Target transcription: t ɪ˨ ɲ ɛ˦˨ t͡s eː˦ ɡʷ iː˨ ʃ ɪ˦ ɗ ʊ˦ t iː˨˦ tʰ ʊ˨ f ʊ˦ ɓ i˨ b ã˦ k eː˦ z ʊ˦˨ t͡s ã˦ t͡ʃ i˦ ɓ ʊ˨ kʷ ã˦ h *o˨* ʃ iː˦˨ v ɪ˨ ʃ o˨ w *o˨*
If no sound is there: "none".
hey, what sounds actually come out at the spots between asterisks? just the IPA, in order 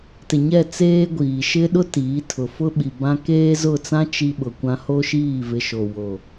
o˦, o˨

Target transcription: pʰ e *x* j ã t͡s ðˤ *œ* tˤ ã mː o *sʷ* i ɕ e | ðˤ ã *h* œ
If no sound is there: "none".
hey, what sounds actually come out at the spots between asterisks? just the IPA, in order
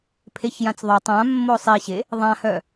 ç, œ, sˤ, h

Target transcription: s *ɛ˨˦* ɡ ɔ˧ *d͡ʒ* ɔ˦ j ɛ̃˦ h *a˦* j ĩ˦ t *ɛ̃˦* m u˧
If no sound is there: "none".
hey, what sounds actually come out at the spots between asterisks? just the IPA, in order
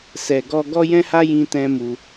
ɛ˨, ɡ, a˦, ɛ̃˦

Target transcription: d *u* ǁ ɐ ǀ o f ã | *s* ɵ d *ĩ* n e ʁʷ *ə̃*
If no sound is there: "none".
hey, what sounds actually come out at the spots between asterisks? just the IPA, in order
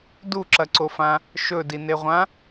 u, ʃ, i, ã

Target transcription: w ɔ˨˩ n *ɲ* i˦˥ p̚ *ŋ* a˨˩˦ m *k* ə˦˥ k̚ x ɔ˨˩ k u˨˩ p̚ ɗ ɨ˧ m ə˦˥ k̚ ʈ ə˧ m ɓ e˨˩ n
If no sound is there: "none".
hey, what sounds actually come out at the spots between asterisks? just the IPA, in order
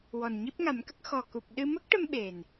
ɲ, ŋ, k

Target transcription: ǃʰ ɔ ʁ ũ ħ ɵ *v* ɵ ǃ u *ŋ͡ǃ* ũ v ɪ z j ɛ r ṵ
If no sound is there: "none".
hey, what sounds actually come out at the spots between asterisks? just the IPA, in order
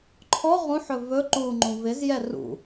v, ŋ͡ǃ

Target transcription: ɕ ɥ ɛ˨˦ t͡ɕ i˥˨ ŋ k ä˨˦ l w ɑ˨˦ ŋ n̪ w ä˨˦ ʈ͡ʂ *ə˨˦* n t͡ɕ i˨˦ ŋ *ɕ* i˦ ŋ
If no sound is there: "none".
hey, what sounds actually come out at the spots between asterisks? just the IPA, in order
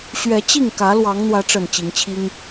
ə˨˩, t͡ɕʰ

